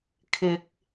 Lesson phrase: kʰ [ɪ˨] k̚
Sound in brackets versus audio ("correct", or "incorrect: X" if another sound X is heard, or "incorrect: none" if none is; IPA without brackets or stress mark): correct